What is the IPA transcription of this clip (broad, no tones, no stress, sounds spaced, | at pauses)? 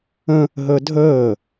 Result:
ə̃ | ɦ əː dʱ əː